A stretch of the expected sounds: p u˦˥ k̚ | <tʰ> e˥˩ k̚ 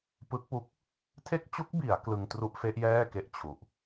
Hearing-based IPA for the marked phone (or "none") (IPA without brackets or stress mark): tʰ